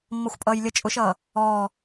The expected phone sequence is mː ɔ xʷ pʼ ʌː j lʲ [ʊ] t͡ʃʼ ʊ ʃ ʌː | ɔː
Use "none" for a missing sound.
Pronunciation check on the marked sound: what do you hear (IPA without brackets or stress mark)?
ə